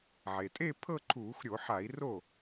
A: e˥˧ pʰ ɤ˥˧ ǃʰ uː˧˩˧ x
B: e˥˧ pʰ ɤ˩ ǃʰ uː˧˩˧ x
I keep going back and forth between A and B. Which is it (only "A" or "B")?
A